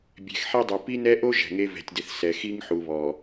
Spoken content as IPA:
bʲ ɛ̤˨ x ħ i˦ dˤ u˨ p i˦ n ɛ˦ ʔ o˦ ʒ ɛ̤˨ ŋ e˦ v ɛ̤˨ tʲ d ɪ˨ θ s ɛ˨ x i˦ ŋ ħ u˨ β ɔ˨

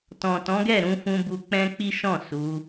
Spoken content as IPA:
t ɔ̃˨ t ɔ̃˨˦ ɡ ɛ˦˨ ɾ ũ˧ f ũ˧ b u˧ k͡p ɛ̃˦ k͡p i˦ ʃ ɔ̃˦˨ s u˨˦

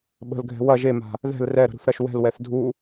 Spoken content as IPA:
ɓ ə̤ l ɡʱ ɛ̤ w ɐ ʒ e m a̤ | ð ɛ̤ l r ɛ ɾ ə̤ ɾ ṳ θ ɾ ɐ ʃ w ɛ̤ l w ɛ θ dʱ u

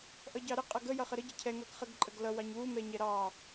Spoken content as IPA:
ʔ ʌ ɟ ɑ ɾ ɪ qʼ ʌ ɡ ə j ʌ χ ə ɾ ə ɟ ʌ cʰ ɛ ŋ ʌ ɡ χ ə ɡ ǃʼ ə ɡ l ʌ w ɑ ɲ w u m ɛ ɲ ɛ ɾ ɑ

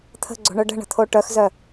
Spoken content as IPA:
t̪ʰ ə̤ ɡ͡ǀ o̤ ɳ œ ɖ ə̤ ɳ ə̤ t̪ʰ o ʈ œ x z œ

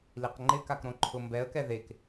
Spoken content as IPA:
l i q ŋ͡ǃ ɪ k a k ɾ õ ǃʰ ʊ m b ɛ ə̯ k ɛ ð e k

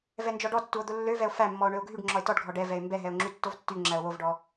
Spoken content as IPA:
v ɛ n d͡ʒ ɔ ɖ ɔ tː u o̯ d̪ o lː ø v ɛ o̯ f æ mː ɔ o̯ ɳ ø o̯ ɡʱ y ɖ ŋ͡ǁ ɔ e̯ t ɔ ɖ ɡʱ ɔ ɖ ɛ v ɛ e̯ m b ɛ ɦ ɛ o̯ ŋ͡ǁ y tː o v tː y ŋ͡ǁ æ o̯ w o v ɖ ɔ

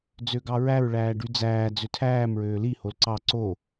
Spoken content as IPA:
d͡z ø ɡ ɑ ɹ æ ɹ ɭ æː ɖ y d͡z æː d͡z ø tʰ æː m ɹ øː l i h o l ǀ ɑ ǀ o

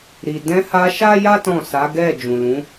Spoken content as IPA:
ɾ i˨ d ɛ̃˧ h a˧ ʃ a˦ j a˦ t ɔ̃˦˨ s a˨˦ ɡ ɛ˦˨ d͡ʒ ũ˨ l ũ˨˦

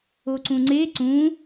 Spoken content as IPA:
o ǀ ũ ŋ͡ǀ e ǀ ũ

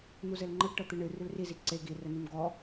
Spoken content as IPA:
n̪ u z ɘ l ŋ͡ǃ ɘ ɡ ʈ ɤ t̪ ɨ ɳ ɨ r ʉ l r i z i ǀ e ɡ i r ɘ n ʉ m ɡ ɔ

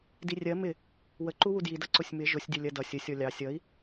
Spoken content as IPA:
d i rʲ ɜ m ɪ | w ə ǃ u w u d j i d ʌ ǀ ʊ sʲ m ɪ ʒ ʊ sʲ dʲ ʌ lʲ ɜ d ʌ sʲ ə sʲ ɔ lʲ ɑ sʲ ʌ i̯

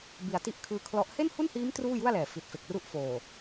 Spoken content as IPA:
b i˨˩ a̯ t i˦˥ ʔ kʰ ɯː˧ kʰ l ɔ˦˥ ʔ h e˥˩ n h u˥˩ n h iː˦˥ m t r uː˥˩ j u˥˩ a̯ l ɛː˨˩ f i˨˩ t̚ f e˨˩ k̚ r u˦˥ ʔ f oː˨˩

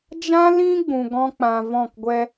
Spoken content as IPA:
d͡ʒ ã˦ l ĩ˦ ɡ͡b ũ˧ ɡ ɔ̃˦ k͡p ã˧ v ɔ̃˦˨ k ɡʷ ɛ˧

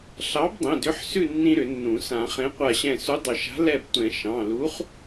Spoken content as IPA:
ɬ ɑ˨˥ b dˤ ĩ˩˧˩ d ʏ˨˥ ħ s ʉ˦˨ nː ĩ˦ ɾ ʏ˨˩˦ nː ũ˨˩˦ s ã˨˩˦ χ ẽ˨˥ qʷ a˦˨ ɕ ɛ̃˦˨ s u˨˥ dˤ ʏ˨˩˦ ʃ a̤˨˥ l ɛ˦˨ b tʷ ɛ̃˨˩˦ ʃ ɑ̃˩˧˩ l u˨˥ χ

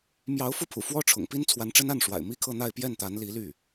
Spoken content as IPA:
m j ɑ˧˥ ʊ̯ f u˧ pʰ ṵ˨˩ f w ɔ˥ ʈ͡ʂʰ ʊ̰˨˩ ŋ p i˥ n t͡sʰ w a˧˥ n ʈ͡ʂ ə˥ n a˥˩ n ʂ w a̰˨˩ ɪ̯ m i˥ kʰ ɤ˥˧ n̪ a˥˧ ɪ̯ p j ɛ˥˩ n t̪ a˧˥ n l i˧˥ l y˥˩

